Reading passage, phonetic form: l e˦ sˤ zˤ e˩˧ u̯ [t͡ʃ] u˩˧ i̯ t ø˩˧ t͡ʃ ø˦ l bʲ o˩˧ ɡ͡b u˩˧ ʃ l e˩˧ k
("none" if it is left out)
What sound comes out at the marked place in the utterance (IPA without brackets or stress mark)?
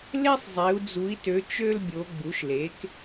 d͡z